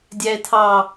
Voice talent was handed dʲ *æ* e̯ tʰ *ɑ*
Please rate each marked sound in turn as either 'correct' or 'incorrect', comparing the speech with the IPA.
correct, correct

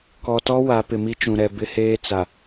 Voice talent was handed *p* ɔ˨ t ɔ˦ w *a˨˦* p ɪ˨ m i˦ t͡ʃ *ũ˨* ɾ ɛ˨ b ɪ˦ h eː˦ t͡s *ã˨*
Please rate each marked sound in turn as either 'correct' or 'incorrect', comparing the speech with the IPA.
incorrect: k, correct, correct, incorrect: a˨

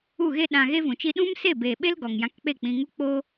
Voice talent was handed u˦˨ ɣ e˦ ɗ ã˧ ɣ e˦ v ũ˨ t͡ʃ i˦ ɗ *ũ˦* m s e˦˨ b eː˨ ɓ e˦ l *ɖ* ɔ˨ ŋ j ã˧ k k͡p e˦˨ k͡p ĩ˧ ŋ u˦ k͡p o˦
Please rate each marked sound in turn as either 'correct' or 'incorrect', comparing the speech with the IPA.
correct, incorrect: ɡ

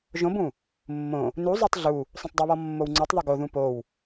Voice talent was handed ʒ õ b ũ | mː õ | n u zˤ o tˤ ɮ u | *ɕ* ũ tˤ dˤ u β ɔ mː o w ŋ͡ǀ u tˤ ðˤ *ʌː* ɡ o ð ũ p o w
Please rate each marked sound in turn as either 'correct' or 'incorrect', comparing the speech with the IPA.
incorrect: sˤ, incorrect: ʌ

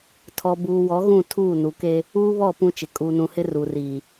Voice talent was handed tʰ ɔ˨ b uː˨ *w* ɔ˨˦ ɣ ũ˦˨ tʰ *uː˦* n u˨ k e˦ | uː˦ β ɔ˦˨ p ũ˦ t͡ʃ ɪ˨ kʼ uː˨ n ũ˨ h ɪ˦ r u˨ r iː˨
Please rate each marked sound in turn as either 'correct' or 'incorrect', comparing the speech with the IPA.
correct, incorrect: uː˦˨

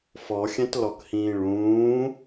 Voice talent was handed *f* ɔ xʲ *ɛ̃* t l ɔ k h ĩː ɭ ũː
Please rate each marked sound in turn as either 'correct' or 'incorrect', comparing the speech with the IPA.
correct, correct

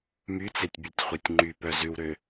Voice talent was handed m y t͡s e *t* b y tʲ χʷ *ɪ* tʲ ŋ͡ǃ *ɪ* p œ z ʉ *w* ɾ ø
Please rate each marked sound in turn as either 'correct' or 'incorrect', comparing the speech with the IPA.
incorrect: tʲ, incorrect: ɛ, incorrect: y, correct

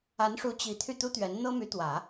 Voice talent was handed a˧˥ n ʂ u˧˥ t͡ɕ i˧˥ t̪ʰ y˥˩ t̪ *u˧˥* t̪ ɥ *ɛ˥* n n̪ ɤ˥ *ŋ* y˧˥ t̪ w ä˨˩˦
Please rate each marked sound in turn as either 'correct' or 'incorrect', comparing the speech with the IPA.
incorrect: u˥, incorrect: ɛ˧˥, incorrect: m

